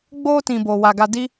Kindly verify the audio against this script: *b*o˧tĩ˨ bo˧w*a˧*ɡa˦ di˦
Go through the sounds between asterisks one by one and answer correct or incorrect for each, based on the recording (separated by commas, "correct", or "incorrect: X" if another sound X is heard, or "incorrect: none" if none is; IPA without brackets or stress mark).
incorrect: ɡ͡b, correct